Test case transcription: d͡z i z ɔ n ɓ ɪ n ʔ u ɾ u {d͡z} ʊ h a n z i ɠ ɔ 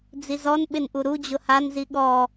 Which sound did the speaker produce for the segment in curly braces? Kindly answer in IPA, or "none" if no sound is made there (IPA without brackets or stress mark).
d͡ʑ